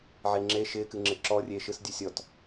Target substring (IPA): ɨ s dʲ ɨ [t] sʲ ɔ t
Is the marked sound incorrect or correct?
incorrect: none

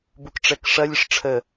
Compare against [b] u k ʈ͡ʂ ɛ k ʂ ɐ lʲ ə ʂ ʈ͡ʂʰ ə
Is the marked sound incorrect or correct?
correct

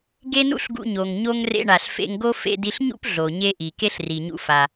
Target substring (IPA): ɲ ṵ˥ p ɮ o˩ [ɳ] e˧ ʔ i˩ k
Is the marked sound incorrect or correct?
incorrect: ɲ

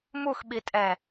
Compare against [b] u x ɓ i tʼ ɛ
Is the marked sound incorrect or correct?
incorrect: m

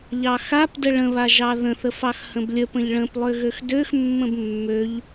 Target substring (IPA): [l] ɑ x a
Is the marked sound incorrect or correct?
incorrect: ʎ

